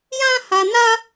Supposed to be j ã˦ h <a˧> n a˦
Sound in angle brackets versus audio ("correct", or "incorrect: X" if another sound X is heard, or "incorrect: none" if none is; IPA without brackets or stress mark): correct